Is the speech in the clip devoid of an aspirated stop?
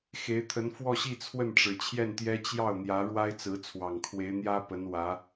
no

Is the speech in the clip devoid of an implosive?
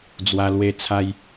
yes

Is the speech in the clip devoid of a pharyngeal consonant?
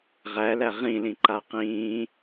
yes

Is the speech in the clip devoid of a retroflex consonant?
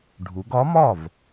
no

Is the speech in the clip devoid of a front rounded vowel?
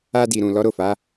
yes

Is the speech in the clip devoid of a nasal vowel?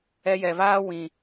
no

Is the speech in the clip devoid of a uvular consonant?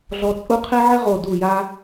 no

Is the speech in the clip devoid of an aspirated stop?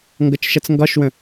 yes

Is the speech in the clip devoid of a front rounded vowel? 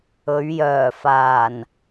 no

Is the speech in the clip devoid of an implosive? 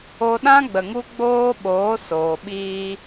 no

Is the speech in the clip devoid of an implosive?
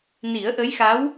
yes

